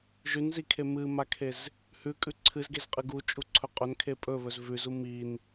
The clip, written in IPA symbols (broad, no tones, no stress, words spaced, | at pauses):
ʒʉnzikʰe mɨmakʰez | hʉkʼʉ ǀʰɨzɡezqʼɨ ɡut͡ʃʼuǀʰɵ qʼɵnkʰe pʼɵβɵz vʉzu min